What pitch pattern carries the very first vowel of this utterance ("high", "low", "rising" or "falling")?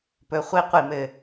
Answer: rising